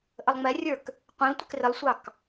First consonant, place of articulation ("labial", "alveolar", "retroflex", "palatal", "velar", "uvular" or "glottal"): glottal